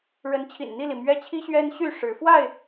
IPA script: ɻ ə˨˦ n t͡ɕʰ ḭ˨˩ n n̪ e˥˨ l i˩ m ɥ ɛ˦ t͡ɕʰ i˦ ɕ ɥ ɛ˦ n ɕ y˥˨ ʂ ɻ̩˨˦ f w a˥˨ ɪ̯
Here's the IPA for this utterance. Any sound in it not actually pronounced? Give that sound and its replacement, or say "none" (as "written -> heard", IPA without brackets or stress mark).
e˥˨ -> i˥˨